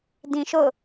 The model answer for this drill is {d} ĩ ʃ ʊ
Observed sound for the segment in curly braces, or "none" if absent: d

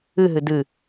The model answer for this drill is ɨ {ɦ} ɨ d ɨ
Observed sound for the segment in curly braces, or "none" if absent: ɦ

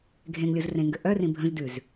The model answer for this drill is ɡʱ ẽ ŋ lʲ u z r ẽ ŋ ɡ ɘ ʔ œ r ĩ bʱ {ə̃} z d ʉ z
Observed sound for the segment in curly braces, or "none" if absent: ə̃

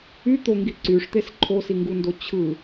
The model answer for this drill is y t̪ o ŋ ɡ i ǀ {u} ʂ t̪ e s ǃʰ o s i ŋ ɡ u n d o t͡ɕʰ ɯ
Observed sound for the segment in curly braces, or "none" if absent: y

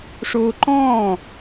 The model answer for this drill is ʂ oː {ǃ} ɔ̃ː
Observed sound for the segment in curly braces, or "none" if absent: ǃ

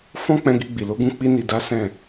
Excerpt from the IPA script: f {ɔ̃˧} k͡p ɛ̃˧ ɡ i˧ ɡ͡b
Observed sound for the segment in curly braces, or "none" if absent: ɔ̃˦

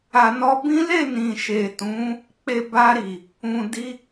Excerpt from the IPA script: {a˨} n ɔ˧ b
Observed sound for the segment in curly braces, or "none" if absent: a˨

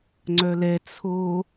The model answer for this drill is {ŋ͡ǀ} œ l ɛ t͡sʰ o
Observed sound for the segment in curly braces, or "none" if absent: ŋ͡ǀ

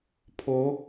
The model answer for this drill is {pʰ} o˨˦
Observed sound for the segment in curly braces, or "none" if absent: pʰ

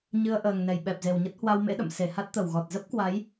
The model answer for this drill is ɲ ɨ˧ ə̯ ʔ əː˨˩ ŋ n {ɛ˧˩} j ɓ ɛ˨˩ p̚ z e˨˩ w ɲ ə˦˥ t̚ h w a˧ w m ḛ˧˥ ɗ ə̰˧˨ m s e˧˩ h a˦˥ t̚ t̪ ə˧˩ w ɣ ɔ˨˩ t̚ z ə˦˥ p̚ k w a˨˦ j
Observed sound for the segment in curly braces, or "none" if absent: ɛ˧˩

